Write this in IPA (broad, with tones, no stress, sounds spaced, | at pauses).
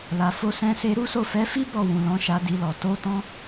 l a˨ f o˧ s ɛ̃˧ s e˧ ɾ u˦ s o˦˨ f ɛ˨˦ f i˦ b ɔ˦˨ w ũ˨ l ɔ̃˨˦ ʃ a˧ d i˧ l ɔ˨ t o˧ t ɔ̃˧